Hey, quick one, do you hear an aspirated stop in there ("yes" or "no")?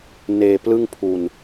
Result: yes